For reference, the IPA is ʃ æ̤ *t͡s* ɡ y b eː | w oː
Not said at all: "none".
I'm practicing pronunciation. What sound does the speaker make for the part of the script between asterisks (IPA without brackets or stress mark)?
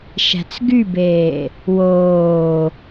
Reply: t͡s